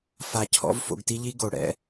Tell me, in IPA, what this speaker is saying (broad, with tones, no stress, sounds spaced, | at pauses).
f a˧ cʰ ɔ̰˥ v f o̰˧ ɡ t i˥ ʎ i˥ ɡ o˩ ɽ ɛ̰˧